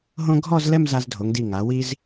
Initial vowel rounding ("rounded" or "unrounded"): rounded